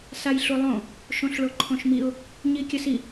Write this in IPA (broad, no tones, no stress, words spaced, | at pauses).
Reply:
sajɬulˠõ | ʃõɬɭoǃʰõʃmiʊ̯ | ɲikʲəsi